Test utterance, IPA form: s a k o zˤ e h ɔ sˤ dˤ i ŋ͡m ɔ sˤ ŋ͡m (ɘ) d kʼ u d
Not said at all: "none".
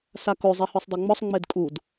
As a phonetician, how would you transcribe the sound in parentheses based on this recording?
e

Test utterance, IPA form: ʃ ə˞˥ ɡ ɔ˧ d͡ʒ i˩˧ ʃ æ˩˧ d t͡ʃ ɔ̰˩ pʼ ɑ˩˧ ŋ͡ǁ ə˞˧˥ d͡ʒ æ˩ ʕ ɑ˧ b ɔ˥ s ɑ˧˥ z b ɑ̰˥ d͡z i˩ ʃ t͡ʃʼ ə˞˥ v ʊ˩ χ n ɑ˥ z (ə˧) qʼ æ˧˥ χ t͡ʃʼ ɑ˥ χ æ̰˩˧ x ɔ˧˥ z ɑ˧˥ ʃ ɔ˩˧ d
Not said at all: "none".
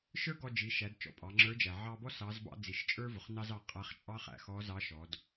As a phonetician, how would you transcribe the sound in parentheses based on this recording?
ɑ˧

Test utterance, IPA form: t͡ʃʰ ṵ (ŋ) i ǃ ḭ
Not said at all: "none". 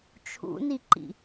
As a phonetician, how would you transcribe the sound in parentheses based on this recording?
n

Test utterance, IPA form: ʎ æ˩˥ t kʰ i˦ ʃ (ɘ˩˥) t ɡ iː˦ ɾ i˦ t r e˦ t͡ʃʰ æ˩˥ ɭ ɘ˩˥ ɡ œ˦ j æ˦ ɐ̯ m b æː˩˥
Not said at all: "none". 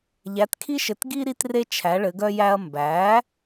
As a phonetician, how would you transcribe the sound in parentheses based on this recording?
ɘ˩˥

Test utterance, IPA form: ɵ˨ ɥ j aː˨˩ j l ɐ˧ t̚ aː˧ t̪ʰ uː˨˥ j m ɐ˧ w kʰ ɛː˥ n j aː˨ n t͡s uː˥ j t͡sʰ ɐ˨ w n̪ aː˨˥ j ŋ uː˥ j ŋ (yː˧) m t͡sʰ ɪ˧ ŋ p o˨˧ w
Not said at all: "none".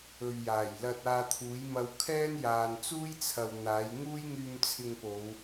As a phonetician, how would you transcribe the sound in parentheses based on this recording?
yː˧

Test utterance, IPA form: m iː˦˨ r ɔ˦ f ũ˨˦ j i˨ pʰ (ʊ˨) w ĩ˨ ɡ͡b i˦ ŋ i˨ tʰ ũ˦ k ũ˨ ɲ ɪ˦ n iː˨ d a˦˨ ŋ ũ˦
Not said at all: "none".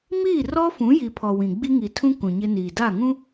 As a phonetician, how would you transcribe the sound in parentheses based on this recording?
ɔ˨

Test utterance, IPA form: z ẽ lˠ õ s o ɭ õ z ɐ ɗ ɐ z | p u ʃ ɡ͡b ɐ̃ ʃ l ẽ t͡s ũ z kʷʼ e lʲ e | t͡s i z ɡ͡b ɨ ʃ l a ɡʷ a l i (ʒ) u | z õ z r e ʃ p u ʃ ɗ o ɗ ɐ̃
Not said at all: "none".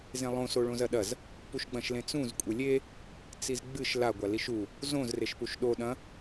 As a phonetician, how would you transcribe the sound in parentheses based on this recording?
ʃ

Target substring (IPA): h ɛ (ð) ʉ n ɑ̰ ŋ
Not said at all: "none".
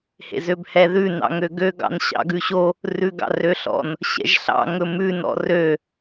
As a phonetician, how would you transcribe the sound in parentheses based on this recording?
ð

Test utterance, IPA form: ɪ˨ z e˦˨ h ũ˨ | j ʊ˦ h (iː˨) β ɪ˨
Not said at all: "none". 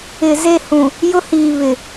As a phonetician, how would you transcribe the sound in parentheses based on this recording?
iː˨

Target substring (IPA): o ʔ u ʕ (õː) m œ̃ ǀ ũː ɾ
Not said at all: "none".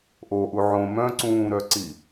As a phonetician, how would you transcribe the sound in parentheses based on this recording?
õ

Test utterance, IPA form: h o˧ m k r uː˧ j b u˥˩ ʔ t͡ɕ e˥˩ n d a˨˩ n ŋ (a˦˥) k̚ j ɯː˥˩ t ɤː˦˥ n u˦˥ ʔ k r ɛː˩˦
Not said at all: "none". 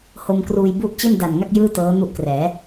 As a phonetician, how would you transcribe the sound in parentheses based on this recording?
a˥˩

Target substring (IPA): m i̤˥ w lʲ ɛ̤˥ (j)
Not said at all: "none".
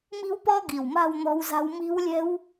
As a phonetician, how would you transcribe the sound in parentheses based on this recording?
w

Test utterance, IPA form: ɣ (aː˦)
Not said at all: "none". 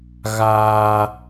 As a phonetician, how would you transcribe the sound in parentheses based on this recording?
aː˦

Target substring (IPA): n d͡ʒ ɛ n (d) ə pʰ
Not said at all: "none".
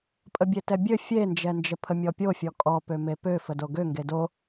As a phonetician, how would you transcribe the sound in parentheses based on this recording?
d͡ʒ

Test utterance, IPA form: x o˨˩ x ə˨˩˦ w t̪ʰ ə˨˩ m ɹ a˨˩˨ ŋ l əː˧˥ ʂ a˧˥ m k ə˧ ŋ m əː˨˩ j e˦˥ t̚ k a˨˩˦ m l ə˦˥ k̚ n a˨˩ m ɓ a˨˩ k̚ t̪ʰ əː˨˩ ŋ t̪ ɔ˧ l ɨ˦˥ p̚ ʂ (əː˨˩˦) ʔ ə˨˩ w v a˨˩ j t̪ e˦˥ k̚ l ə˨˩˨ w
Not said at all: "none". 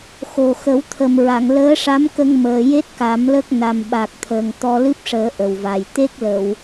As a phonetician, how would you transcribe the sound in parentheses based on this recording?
əː˨˩˦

